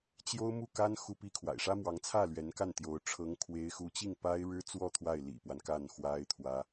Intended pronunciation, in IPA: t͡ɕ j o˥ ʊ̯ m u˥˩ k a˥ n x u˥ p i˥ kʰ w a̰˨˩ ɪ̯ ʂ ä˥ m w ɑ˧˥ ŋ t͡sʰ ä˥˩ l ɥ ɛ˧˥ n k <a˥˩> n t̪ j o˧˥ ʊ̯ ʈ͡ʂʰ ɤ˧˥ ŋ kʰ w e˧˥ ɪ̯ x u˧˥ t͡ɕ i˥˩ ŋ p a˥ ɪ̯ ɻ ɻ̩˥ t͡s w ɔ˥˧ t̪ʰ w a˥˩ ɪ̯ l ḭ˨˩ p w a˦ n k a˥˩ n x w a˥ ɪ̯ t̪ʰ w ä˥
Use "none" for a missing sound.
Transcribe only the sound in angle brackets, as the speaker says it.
a˥˩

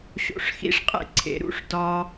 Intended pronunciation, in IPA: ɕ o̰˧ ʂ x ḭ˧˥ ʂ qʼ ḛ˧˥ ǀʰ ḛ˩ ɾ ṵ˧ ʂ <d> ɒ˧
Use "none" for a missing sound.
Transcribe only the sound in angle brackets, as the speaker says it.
d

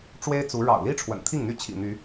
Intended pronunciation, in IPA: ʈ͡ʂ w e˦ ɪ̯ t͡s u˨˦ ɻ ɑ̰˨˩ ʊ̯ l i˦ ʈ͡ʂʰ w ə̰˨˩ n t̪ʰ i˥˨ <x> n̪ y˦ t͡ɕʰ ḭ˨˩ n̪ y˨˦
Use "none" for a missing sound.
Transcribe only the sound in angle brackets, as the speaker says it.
ŋ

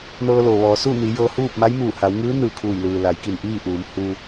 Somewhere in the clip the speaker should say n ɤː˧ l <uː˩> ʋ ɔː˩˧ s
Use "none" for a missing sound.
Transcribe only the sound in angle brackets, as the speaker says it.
oː˩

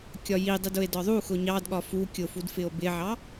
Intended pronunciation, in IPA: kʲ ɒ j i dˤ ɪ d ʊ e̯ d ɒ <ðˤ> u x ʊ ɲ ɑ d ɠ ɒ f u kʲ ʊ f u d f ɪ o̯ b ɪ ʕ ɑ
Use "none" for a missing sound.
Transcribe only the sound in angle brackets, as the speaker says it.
ðˤ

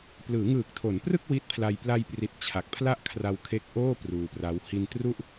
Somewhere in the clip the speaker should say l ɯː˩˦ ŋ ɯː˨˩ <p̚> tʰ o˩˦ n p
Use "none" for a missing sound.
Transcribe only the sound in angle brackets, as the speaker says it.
k̚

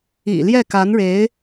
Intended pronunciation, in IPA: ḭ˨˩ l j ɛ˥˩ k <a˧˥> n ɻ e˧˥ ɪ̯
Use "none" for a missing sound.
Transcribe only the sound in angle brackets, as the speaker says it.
a˧˥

